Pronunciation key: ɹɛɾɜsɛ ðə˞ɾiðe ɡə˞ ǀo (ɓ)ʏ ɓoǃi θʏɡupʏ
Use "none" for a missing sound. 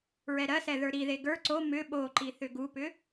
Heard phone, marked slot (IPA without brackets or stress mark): m